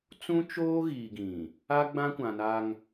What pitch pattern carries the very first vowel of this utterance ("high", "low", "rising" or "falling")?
high